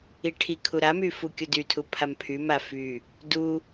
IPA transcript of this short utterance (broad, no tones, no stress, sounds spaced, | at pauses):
i ʈʰ i kʰ u ɾ a m y f u kʲ u d y tʰ u pʰ a m pʰ y m a f y | d u